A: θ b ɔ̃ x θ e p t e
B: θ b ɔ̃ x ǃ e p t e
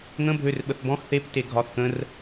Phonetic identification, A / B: A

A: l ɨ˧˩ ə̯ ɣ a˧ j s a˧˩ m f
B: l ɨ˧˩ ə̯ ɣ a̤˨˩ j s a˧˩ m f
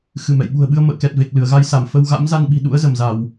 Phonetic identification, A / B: A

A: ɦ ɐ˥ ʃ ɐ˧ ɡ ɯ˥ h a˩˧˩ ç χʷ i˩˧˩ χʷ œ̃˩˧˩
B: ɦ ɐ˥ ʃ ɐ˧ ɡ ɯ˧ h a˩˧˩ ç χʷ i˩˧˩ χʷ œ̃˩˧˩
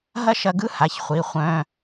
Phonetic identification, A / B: A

